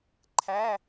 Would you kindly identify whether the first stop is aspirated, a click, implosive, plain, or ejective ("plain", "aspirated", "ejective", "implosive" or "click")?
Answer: click